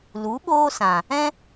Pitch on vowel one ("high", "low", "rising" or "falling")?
rising